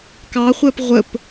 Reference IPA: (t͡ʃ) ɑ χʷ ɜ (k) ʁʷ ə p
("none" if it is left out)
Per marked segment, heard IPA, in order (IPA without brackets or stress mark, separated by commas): k, p